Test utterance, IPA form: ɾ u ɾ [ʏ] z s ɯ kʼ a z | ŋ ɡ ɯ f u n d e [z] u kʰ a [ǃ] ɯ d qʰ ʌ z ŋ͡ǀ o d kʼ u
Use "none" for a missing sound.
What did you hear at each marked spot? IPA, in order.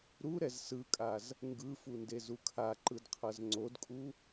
ɛ, z, ǃ

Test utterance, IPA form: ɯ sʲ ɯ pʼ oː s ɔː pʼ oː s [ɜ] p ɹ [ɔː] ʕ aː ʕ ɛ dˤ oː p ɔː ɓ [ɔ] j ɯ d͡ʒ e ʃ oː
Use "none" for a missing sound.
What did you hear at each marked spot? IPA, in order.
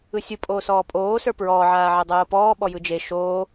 ə˞, ɔː, ɔ

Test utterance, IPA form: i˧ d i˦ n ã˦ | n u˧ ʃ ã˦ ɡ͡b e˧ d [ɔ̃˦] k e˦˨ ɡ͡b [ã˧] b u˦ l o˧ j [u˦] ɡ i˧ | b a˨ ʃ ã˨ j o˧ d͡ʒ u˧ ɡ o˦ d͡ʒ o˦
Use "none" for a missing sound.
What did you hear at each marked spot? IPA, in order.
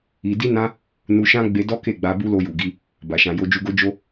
ɔ˦, a˧, u˨

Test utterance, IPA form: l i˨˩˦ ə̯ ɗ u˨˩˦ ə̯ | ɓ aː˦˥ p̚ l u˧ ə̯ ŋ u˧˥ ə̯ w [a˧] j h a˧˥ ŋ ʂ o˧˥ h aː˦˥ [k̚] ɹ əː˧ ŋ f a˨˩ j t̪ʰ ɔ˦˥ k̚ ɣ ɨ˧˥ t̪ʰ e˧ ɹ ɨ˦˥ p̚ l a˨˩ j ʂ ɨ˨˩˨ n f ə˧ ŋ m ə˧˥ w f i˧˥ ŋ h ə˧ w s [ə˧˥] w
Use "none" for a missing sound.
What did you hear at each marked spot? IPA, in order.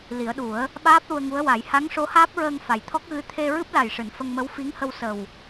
a˨˩˦, p̚, ə˨˩

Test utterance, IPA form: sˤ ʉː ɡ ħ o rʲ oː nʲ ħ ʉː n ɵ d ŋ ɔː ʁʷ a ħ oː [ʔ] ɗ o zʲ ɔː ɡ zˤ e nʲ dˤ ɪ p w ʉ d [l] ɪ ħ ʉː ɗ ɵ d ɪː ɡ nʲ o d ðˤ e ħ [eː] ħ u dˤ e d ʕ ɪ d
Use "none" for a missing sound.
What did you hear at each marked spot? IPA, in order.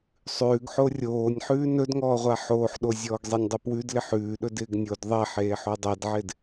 ħ, l, eː

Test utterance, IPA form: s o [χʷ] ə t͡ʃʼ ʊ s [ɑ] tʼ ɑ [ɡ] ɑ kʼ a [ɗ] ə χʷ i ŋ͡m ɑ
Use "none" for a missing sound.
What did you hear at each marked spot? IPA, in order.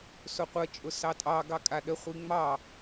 qʷ, ɑ, ɡ, ɗ

